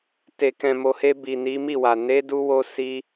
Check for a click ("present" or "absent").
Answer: absent